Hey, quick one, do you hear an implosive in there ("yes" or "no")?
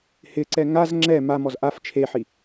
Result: no